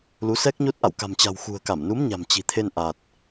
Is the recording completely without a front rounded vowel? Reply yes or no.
yes